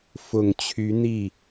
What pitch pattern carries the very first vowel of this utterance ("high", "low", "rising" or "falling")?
low